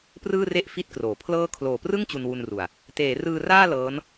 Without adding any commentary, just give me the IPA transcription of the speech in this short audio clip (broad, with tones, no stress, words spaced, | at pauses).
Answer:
prɯː˥˩re˥˩ʔ fi˦˥t̚kroː˨˩ pʰlɤː˦˥kʰloː˨˩prɯ˥˩ŋ t͡ɕu˧nwu˧nru˨˩a̯ | teː˩˦rɯː˧raː˥˩ lɤː˦˥n